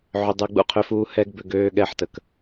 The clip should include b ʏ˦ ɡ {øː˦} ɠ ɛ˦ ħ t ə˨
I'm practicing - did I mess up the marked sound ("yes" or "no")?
no